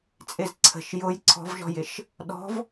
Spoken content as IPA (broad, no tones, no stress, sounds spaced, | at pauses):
t͡sʼ ɪ z ǀʰ ə̤ ʃ j ʊ j ǀʰ ɔ̤ v ʒ ɔ̤ j ɪ ʃ | ɗ ɔ̤ v